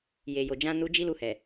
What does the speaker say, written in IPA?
j e˨ j o˨ d͡ʒ ã˧ n u˧ d͡ʒ i˦ l u˧ h ɛ˨

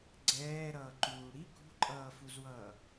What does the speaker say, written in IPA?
ɡ͡ǀ ɛː ɾ ʌː ǃ uː ɽ i k ṳ ǃʼ ʌː f u z w ʌː

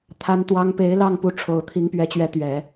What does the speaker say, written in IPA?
t̪ʰ a˥ n t̪ w ɑ˥ ŋ p e˧˥ ɪ̯ l ɑ˥˩ ŋ p u˧˥ ʈ͡ʂʰ o˨˩ ʊ̯ t̪ʰ i˧˥ ŋ p ɥ ɛ˧˥ t͡ɕ ɥ ɛ˧˥ t̪ ɥ ɛ˨˩˦

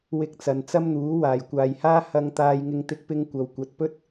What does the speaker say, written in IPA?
w ɪ˧ k̚ t͡s ɐ˨ n t͡s ɐ˥ m n̪ uː˨˥ w aː˨˩ j kʷ aː˨ j h aː˥ h ɐ˧ ŋ t̪ aː˧ j ŋ ɪ˥ ŋ t̪ ɪ˥ k̚ p ɪ˥ ŋ kʷ ɐ˨ w kʷ ɐ˨˥ t̚ p ɵ˥ t̚

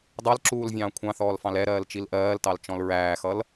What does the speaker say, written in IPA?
dˤ ɜ l ǁ uː l vʲ ɑ̃ː kʷʰ ɑ̃ θ ɔː l f ɑ̃ l ɛ ɾ ɜː l t͡ʃ i l ʔ ɜː l t ɑ l t͡ʃ ɔ̃ l ɹ æː x ʌ l

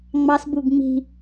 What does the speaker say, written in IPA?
ŋ͡m ɑ s b u ɡ ŋ͡m i̤

